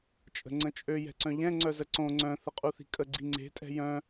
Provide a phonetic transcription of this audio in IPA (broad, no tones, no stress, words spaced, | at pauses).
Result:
t͡ʃʼə̤ŋ͡ǀə̃t͡ʃʼø jɛ̤ǀœ̃ʎɛ̃ ŋ͡ǀœzəǀõ ŋ͡ǀœ̃ θəqʼuθi̤kʼə ɡ͡ǀiŋ͡ǀe̤ tʼɛ̤jœ̃